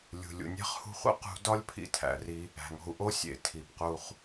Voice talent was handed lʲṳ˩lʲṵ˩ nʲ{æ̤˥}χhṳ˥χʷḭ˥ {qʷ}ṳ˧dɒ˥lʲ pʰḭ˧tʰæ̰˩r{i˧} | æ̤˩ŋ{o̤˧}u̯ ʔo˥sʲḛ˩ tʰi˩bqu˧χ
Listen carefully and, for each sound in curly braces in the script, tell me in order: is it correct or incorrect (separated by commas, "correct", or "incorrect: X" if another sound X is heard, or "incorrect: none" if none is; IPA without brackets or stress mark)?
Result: correct, incorrect: q, correct, correct